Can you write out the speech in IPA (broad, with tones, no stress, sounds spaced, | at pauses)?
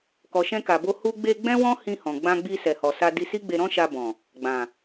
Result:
k ɔ˨ ʃ ɛ̃˧ k a˨ b o˧ h u˧ ɡ͡b e˧ ɡ͡b ɛ̃˦ w ɔ̃˦ h ĩ˧ h ɔ̃˨ ɡ͡b ã˧ ɡ͡b i˧ s ɛ˨ h ɔ˨ s a˧ d i˧ s i˦ ɡ͡b e˧ ɾ ɔ̃˦ ʃ a˧ b ɔ̃˨ | ɡ͡b ã˨